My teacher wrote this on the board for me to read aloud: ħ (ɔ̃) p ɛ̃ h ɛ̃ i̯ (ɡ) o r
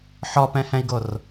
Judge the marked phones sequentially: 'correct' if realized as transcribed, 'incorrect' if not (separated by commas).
incorrect, correct